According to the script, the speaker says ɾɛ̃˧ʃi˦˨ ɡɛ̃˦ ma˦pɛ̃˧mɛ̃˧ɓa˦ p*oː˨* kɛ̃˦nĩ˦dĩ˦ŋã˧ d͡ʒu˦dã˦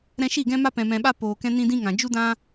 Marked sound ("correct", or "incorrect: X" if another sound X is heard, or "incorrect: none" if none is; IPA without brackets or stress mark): incorrect: oː˧